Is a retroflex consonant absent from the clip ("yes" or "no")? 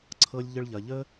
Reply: no